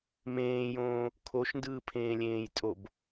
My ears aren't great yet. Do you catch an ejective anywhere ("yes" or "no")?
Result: yes